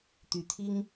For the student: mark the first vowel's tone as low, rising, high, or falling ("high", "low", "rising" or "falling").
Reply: low